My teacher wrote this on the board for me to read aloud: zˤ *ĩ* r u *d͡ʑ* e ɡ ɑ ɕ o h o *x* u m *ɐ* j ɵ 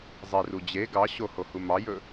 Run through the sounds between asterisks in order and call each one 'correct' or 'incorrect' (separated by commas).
incorrect, correct, incorrect, incorrect